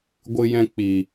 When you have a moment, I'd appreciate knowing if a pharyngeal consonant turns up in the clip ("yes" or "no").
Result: no